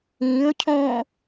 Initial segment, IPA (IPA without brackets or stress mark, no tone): ĩː